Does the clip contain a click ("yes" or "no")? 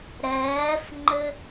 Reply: yes